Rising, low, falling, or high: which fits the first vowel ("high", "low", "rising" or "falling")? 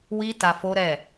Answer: high